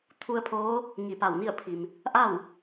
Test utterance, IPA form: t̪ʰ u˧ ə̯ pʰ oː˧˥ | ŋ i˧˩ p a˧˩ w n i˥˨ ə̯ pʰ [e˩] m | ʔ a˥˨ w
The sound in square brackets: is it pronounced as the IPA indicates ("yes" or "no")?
no